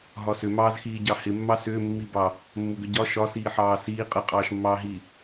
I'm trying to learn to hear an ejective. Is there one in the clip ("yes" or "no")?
yes